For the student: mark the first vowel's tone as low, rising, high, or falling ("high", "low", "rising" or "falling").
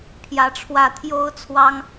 rising